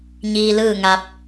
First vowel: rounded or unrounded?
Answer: unrounded